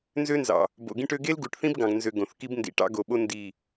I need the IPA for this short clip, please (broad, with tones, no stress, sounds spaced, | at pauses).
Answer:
n z ø˦ n z ɑ̰˨ | b o̰˨ ɡ ĩ˦ ʈ ø˦ ɡ e˦ l ɡ u˨ ʈ θ ĩ˦ b ɡ ɑ̃˨ ɡ n z ø˨ ɡ õ˨ θ k i˦ b n d ḭ˨ ʈ ɑ̰˦ ɡ o˨ ɓ o˦ n d i˦˨